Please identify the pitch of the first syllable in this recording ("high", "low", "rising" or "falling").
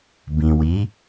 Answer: low